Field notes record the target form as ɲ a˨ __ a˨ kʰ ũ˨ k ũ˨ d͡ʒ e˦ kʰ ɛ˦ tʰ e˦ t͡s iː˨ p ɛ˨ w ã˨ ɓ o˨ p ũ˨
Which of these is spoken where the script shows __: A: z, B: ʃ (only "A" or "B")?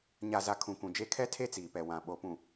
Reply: A